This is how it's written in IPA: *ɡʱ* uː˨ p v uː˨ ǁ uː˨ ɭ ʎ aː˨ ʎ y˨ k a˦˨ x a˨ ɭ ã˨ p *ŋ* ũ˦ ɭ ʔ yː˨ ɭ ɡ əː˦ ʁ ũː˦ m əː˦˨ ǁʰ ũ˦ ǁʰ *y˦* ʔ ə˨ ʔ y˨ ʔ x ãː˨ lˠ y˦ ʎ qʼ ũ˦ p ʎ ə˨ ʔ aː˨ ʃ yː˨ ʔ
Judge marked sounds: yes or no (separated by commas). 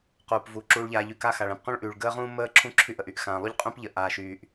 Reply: no, no, yes